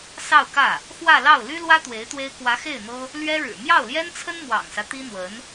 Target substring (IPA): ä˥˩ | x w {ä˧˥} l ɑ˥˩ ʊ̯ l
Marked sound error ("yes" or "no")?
yes